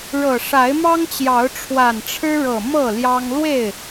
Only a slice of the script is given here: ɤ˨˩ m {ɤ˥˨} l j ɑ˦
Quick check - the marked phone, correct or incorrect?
correct